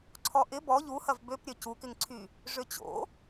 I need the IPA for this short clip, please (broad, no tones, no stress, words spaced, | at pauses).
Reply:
ǀʰɔʔɪ bɔ ʎuhɐv bøpɾʲœ cukɪŋǀʰy | ʐøt͡ɕo̰